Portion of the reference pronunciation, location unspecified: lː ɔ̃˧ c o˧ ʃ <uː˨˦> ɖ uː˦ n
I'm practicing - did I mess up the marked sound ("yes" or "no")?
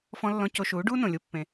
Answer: no